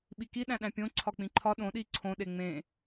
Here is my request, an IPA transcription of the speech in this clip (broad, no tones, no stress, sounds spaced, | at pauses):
ɓ i k i ɗ æ̃ ɗ æ̃ pʲ õ ǀʰ ɒ k͡p ĩ ǃʰ ɒ ɗ õ ɗ i ǀʰ õ ɗ e ŋ͡m ẽ